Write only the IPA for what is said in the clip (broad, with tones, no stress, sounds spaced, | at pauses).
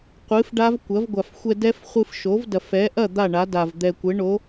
qʷ ɨ˩˥ f ɖ a˦˥ v kʷ ɐ˩˥ v ɡʷ a˨˩ f xʷ ɛ˧ d ɛ˦˥ f χʷ ɨ˧ f ʃ o˩˥ v d ɐ˨˩ f ɛ˩˥ ʔ ɐ˥˩ d̪ a˥˩ ɳ a˩˥ d a˨˩ v d̪ ɛ˨˩ kʷ ɘ˩˥ ɳ o˩˥